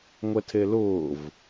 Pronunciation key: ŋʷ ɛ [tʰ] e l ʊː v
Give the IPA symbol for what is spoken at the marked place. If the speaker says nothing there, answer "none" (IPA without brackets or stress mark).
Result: tʰ